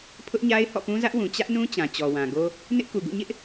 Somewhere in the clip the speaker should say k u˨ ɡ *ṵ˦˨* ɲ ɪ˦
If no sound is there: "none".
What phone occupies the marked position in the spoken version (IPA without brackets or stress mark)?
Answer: ṵ˦˨